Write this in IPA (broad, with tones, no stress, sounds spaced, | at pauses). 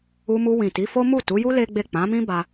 u˧ m u˧ w ĩ˨ t i˨˦ f o˦ m u˦˨ t u˨˦ j u˦ l e˦ ɡ͡b e˦˨ k͡p ã˨˦ m ĩ˦ b a˧